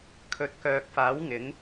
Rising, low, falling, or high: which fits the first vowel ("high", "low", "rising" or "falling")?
rising